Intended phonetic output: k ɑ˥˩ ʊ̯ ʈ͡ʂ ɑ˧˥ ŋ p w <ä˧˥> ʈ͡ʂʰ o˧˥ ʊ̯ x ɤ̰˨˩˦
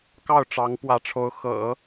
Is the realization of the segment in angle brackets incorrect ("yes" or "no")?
no